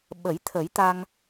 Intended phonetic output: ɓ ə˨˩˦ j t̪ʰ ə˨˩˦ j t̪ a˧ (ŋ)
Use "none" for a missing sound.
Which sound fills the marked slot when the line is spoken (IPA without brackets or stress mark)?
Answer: ŋ